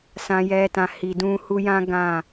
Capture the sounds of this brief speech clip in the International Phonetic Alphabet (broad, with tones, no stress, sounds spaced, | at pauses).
s ã˨ j ɛ˨ t ã˨ h i˨ d ũ˧ h u˦ j ã˦ ɡ ã˦˨